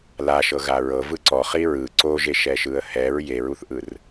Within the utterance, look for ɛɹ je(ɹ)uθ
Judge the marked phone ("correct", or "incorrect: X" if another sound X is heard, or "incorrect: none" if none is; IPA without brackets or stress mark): correct